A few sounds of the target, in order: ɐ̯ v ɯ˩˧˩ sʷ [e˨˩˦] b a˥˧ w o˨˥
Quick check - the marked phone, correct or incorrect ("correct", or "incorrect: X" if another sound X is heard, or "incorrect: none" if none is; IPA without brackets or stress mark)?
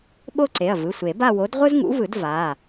correct